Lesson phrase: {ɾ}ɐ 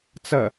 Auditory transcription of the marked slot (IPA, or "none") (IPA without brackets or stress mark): t͡s